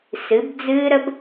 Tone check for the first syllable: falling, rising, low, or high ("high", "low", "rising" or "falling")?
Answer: rising